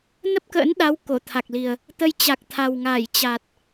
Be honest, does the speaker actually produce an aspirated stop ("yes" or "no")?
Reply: yes